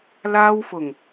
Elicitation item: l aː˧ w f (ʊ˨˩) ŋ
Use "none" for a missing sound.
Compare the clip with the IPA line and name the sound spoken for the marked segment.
ʊ˨˩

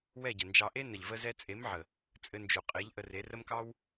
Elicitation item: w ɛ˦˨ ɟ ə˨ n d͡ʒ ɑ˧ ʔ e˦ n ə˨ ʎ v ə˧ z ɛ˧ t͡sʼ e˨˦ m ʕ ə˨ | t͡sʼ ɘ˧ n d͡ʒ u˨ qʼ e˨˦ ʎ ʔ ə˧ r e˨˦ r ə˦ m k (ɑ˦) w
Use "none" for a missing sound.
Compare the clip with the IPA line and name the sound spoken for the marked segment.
ɑ˦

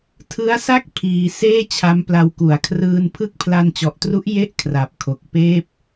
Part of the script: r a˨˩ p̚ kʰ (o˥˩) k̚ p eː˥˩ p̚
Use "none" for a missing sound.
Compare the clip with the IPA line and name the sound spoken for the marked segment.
o˨˩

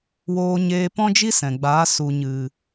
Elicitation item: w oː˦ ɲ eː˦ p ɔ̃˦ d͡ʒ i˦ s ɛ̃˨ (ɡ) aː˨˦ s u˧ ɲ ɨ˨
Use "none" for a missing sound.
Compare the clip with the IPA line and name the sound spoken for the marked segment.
ɡ͡b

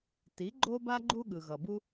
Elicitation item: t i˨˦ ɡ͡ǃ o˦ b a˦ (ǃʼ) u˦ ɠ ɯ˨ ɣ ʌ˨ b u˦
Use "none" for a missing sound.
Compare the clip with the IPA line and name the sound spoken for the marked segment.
ɡ͡ǃ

